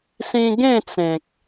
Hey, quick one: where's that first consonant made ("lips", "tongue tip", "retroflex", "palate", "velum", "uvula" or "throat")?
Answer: tongue tip